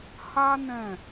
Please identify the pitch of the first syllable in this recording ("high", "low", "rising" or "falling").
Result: high